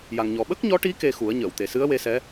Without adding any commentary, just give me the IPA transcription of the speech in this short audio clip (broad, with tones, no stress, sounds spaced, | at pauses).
j a˨˩ ŋ ɲ ɔ˨˩ ɓ ə˦˥ k̚ ɲ ɔ˧˥ ʈ i˧˥ k e˧ x u˨˩˦ ə̯ ɲ əː˨˩˨ w t̪ e˨˩˨ s ɨ˧˥ ə̯ w e˧˥ s ɛ˧˥